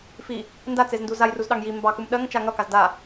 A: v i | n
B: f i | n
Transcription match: B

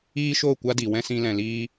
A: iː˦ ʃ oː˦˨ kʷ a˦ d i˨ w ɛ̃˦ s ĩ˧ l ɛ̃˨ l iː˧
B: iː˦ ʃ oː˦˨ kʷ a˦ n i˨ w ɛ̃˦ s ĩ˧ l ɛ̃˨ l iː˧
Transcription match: A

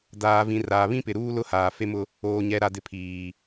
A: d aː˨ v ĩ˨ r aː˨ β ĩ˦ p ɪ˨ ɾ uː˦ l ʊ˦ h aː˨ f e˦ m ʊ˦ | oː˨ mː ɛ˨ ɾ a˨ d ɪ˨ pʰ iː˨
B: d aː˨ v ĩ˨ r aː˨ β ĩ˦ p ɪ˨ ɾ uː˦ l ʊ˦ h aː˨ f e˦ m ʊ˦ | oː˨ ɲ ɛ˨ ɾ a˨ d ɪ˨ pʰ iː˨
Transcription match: B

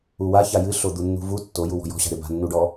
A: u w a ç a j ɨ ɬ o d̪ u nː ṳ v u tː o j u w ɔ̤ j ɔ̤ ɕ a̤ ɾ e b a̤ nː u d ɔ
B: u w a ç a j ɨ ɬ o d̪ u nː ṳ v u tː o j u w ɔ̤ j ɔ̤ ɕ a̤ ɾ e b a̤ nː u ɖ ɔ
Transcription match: B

